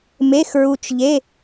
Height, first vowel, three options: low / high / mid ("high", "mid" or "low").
mid